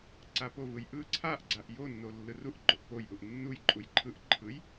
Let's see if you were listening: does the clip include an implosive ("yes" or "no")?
no